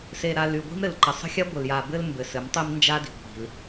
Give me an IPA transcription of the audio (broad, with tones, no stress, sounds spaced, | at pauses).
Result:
s e˨ ɾ a˨ l y˨ ɡʷ i̤˦ m ɾ ɘ˨ l ǃ ə˨ sˤ ə̤˦ xʲ a˦ ɡʷ ə˨ l j a˨ b ɘ˦ l m b ɘ˨ s ɘ˨˦ m tˤ i˦ m n d͡ʒ a˦ d i̤˨ ɡʷ i̤˨ l